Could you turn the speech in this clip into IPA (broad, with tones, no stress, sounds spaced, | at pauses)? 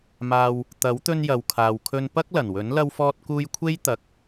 m aː˧ w | t̪ ɐ˨˥ w t̪ ɵ˧ n j ɐ˨ w kʰ aː˨ w kʰ ɵ˧ n p ɐ˥ k̚ l ɐ˨˩ n w ɵ˨˥ n l ɐ˧ w f ɔː˧ t̚ k uː˧ j kʷʰ e˥ j t̪ ɐ˨˥ k̚